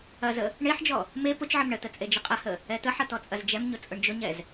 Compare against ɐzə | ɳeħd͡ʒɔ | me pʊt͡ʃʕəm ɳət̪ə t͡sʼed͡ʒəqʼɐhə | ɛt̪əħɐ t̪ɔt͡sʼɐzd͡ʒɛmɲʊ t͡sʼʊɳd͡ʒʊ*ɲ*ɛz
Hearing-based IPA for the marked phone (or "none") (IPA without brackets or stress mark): ɲ